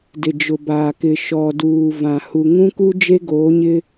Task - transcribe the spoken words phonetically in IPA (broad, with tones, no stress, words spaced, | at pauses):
dɪ˨d͡ʒʊ˨baː˨ kɪ˨ ʃɔ˨duː˨ vã˨ hu˨ŋũ˦ku˦ d͡ʒe˦ɡoː˨˦ɲɪ˦